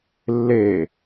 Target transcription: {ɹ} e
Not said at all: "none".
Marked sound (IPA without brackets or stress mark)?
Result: lː